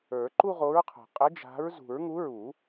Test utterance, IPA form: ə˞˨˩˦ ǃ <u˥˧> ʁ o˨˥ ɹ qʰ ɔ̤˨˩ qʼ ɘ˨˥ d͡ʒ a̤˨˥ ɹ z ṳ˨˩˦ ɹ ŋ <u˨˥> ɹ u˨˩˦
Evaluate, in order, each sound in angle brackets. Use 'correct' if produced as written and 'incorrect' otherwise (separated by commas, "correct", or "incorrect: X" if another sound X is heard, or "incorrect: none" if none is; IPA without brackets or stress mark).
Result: correct, correct